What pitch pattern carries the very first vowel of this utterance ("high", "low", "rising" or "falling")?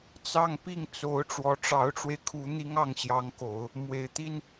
falling